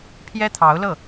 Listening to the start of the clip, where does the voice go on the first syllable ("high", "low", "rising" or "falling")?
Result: high